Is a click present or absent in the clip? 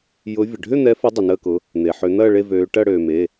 absent